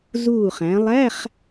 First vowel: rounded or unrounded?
rounded